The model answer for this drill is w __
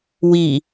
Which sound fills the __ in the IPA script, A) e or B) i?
B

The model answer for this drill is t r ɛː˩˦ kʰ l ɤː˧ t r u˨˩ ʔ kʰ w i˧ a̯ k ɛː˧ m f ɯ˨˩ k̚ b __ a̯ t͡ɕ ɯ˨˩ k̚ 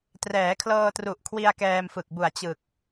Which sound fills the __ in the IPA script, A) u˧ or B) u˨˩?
B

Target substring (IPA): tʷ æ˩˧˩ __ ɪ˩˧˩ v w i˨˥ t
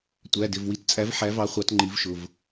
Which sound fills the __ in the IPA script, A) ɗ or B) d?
B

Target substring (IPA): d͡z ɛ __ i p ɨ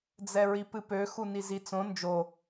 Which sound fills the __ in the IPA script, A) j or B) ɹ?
B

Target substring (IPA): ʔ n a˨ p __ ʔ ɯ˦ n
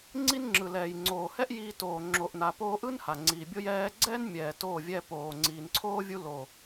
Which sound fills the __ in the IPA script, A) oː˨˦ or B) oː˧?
B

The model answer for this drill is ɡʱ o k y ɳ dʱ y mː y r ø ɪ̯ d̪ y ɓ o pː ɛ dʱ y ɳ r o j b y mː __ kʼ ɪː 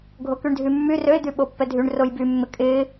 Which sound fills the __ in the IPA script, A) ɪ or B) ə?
A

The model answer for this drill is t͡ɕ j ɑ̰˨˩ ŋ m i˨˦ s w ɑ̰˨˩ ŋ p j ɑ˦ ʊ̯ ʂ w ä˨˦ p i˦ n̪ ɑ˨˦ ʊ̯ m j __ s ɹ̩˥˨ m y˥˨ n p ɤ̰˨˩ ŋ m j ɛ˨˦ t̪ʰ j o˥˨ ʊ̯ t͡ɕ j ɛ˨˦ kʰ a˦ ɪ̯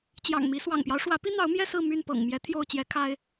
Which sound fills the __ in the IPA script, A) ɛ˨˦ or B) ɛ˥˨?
B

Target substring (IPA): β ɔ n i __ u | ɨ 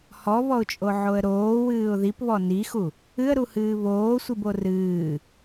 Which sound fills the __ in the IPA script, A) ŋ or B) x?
B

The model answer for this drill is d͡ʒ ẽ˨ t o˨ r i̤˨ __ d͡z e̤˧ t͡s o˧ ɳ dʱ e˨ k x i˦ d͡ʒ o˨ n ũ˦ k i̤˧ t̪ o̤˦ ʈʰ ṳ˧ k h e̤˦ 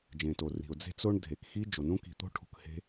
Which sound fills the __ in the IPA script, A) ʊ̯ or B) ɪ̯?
A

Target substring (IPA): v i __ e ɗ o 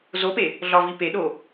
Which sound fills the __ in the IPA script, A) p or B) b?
A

